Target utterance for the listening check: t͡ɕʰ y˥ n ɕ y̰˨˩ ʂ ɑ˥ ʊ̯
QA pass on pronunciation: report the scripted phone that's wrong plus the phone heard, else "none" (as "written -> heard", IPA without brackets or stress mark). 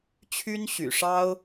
none